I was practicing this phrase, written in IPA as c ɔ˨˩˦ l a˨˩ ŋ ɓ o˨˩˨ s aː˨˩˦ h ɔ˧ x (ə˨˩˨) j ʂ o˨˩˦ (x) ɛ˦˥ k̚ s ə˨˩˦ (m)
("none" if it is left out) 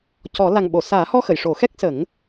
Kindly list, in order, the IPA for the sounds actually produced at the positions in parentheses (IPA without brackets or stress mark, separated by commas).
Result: ə˨˩˨, x, ŋ